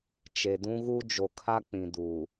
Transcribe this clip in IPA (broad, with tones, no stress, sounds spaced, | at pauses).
t͡ʃ e˨ d ũ˦ ɣ u˦ d͡ʒ o˨ kʰ a˦ k͡p ĩ˨ d uː˨